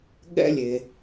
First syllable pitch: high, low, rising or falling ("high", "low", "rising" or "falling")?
high